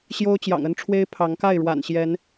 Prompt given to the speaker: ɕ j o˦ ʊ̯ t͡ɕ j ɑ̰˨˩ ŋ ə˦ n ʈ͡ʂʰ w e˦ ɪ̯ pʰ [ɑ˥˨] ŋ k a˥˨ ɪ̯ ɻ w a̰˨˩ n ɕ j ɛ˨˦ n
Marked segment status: incorrect: ɑ˨˦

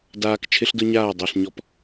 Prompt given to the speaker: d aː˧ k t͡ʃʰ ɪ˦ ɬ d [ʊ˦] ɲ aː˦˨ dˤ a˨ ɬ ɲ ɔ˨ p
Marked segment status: correct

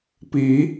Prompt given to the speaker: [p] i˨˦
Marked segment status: correct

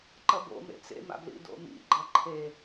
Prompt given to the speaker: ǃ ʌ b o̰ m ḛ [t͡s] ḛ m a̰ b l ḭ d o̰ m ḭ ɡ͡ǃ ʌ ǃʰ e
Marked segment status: correct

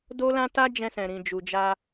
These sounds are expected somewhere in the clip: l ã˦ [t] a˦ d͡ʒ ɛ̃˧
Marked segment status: correct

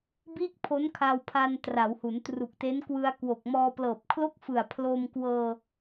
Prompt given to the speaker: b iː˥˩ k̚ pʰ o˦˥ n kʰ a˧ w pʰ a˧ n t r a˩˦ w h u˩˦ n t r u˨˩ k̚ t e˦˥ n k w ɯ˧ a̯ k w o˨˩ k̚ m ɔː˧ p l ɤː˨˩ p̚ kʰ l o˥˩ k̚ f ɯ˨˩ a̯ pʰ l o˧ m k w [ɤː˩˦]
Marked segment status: incorrect: ɤː˧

